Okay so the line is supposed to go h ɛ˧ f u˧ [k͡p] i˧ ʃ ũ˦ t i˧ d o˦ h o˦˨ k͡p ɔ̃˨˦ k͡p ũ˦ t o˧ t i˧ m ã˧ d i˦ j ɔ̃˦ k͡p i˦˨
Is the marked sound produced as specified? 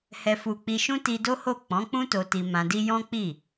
yes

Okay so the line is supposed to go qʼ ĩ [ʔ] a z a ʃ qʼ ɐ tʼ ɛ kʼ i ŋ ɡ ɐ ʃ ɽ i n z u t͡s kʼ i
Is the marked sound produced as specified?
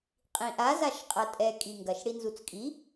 yes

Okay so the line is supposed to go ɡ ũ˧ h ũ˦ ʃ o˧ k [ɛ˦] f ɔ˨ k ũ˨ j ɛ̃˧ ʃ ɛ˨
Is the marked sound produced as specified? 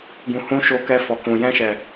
no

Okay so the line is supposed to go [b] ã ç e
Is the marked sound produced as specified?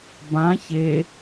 yes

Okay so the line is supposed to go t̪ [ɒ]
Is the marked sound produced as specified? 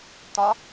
yes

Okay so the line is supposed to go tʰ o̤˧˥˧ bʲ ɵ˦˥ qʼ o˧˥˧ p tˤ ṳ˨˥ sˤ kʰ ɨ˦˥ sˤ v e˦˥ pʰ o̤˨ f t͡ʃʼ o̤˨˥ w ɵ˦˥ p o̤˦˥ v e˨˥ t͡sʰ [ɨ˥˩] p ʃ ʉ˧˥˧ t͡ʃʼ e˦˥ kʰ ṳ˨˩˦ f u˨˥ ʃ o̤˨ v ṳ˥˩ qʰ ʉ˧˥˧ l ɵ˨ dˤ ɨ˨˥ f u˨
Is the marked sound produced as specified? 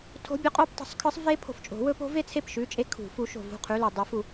no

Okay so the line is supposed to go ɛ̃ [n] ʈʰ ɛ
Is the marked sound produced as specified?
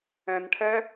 yes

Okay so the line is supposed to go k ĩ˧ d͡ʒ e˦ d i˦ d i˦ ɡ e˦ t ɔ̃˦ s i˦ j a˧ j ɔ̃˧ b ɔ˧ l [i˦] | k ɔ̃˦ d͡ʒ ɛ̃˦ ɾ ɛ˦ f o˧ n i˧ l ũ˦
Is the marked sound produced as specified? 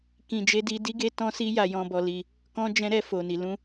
no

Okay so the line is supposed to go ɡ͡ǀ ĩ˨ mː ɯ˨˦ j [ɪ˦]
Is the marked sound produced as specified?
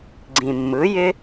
yes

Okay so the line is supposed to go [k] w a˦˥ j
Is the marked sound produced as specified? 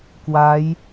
yes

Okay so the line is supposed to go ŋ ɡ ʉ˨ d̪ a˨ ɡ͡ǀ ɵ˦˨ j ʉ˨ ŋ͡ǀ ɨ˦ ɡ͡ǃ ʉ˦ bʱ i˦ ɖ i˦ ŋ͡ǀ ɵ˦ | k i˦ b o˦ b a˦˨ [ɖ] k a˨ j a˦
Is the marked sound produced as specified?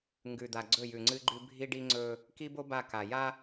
no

